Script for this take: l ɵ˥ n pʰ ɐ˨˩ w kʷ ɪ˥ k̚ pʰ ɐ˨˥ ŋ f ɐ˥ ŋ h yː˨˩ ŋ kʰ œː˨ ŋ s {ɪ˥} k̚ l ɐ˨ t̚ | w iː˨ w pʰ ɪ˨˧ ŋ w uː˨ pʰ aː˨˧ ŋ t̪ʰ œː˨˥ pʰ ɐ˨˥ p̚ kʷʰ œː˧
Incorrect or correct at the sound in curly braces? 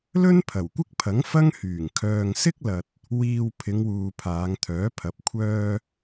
correct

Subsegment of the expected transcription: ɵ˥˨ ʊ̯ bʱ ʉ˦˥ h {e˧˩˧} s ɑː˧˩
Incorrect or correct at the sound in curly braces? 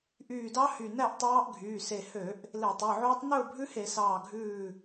correct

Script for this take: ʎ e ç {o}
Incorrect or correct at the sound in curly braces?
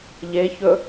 incorrect: ɵ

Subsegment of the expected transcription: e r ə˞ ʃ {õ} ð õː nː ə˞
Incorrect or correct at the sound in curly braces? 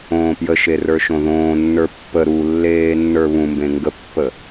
correct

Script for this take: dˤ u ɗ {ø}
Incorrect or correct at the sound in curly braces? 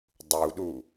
incorrect: u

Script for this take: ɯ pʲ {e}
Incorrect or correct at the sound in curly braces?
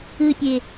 correct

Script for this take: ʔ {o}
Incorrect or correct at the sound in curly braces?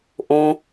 incorrect: õ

